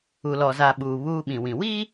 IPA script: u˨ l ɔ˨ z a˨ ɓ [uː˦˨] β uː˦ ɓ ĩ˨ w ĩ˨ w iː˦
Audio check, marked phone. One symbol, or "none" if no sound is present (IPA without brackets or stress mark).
uː˨